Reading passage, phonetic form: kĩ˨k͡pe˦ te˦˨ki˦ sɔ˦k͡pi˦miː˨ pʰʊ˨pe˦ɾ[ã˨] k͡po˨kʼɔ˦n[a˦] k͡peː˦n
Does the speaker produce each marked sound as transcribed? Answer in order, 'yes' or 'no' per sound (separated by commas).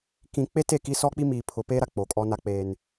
no, yes